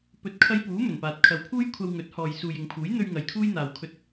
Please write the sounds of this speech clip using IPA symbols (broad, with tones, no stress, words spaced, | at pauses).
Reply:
pɵ˨˥t̚kʰɐ˧jpuː˨˥ mɵ˨˩npaː˨t̚ kʰɐ˨˧wpʰuː˥jkʷʰɐ˧w ŋɵ˨˥t̚hɔː˨jsuː˨j ɪ˨ŋpʰuː˨˥jn̪ɵ˧ɥ ŋɐ˨jkʰuː˥jn̪aː˨wkʰɵ˧t̚